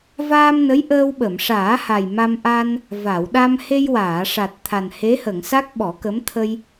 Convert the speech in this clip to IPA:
v aː˧ m n ə˧˥ j ʔ əː˧ w ɓ ə˨˩˨ m ʂ aː˨˩˦ h a˨˩ j m a˧ m ʔ a˧ n | v a˨˩˨ w ɗ a˧ m h e˧ j w aː˨˩˨ ʂ a˨˩ t̚ t̪ʰ a˨˩ n h e˧˥ h ə˨˩˨ ŋ s a˦˥ k̚ ɓ ɔ˨˩˦ k ə˧˥ m t̪ʰ ə˧ j

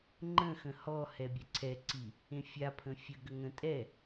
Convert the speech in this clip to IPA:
ŋ͡ǃ ə̃ x ə̃ h ɔ h ɛ bʲ ɛ ǀʰ ɛ ǀ i | ẽ fʲ a pʰ ə̃ fʲ ə ɡ ə ŋ ə̃ tʼ ɛ

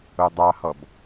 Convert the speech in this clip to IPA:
o dˤ ɑ h ɔ b

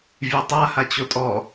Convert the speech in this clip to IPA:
vʲ e tˤ a h a t͡ɕ o tʼ ɔ

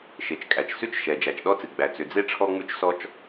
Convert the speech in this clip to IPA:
ʃ e˩ t͡ʃ kʼ æ˩ t͡ʃ s ʉ˥ t͡ʃ ʃ ɛ˩ d͡ʒ æ˩ t͡ʃ ɗ ɔ˥ t͡s ɨ˩ ɡ͡b æ˩ t͡s ʏ˩ d͡z e˥ ʈ͡ʂʰ ɔ˥ ŋ͡m ʉ˥ t͡ʃ s ɔ˥ t͡ʃ

